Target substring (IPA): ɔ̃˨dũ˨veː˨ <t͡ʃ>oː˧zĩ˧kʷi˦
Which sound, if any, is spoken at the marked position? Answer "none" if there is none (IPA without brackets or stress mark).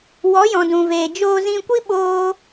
d͡ʒ